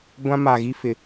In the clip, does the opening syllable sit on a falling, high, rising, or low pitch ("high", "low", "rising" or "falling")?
high